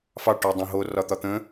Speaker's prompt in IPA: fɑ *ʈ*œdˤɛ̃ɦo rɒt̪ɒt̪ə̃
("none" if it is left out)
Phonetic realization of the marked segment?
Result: ʈ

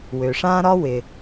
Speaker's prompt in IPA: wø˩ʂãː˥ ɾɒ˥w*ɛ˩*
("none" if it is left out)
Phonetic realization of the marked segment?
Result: ɪ˩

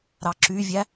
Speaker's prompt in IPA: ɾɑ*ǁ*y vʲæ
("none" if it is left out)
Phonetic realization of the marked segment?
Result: ǁ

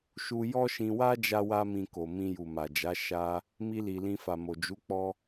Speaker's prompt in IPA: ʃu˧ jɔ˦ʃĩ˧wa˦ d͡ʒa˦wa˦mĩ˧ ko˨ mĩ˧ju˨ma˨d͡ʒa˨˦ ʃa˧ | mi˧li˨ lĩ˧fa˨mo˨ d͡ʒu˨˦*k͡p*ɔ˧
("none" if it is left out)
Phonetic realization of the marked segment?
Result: k͡p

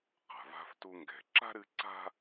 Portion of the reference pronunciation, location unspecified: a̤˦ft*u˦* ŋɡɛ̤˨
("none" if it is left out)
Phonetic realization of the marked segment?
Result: u˦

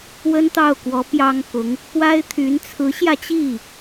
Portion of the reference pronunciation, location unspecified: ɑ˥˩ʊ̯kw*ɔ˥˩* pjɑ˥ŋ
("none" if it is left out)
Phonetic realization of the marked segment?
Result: ɔ˧˥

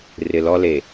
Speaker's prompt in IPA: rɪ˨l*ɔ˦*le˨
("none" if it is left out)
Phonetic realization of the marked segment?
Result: ɔ˦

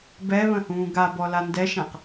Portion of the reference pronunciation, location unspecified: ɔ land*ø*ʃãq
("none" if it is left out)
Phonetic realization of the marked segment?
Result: ɛ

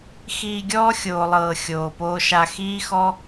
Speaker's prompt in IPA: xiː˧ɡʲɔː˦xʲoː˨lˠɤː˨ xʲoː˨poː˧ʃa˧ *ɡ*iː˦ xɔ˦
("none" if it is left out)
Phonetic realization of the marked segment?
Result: x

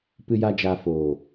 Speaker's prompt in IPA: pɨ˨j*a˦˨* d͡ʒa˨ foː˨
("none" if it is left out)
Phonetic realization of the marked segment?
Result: a˨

